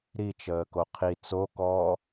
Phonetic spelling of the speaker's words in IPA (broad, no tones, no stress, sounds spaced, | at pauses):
ɾ i t͡ʃ əː k o qʰ i t͡s o k ɔː